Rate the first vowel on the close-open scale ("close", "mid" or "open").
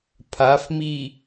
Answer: open